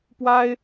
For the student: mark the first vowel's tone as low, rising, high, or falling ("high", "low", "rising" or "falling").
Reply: high